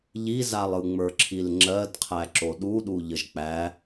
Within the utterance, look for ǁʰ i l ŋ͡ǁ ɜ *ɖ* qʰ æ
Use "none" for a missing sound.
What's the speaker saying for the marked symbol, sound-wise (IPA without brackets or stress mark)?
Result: d